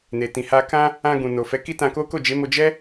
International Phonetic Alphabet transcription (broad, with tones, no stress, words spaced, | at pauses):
ne˨tĩ˨ha˧ kã˧ | ã˧ɡũ˨ no˨fɛ˨˦ ki˦tã˧ko˦ ko˦˨d͡ʒe˨˦mo˧ d͡ʒɛ˦